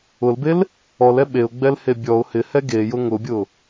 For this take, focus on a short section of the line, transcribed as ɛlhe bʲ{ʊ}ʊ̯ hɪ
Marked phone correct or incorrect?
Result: incorrect